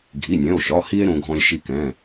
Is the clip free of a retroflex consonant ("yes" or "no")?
yes